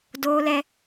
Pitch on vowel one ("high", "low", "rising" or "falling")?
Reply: high